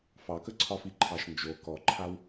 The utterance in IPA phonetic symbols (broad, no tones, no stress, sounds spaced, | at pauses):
f ɑ k ə ǀʰ ɒ f i ǃʰ ɑ ʃ n d͡ʒ o k ɔ ǃʰ a w